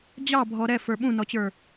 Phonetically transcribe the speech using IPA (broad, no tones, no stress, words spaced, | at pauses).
d͡ʑɑbʱɔ ɾɛfə˞ ɓũnɔt͡ɕə˞